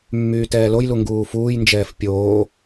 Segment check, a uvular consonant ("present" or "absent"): absent